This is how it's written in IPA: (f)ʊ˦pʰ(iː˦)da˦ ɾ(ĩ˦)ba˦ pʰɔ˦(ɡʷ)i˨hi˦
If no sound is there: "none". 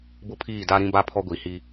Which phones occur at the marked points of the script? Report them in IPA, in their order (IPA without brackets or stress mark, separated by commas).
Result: b, iː˦˨, ĩ˦, ɡʷ